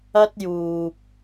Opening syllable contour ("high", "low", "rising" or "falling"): high